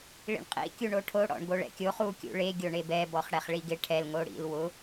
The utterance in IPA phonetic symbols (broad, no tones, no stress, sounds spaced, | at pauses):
ɭ ḭ ɳ qʼ ḭ kʲ u ɳ o ʈʰ o ɽ ɔ̰ ɳ ɡ o ɭ ɛ̰ kʲ o χ u kʲ ṵ ɭ e ɡʲ o ɳ e b ɛ b ɔ χ ɽ ɛ χ ɭ i ɡ ɪ ʈʰ ɛ l ŋ o ɽ ḭ l w ʊ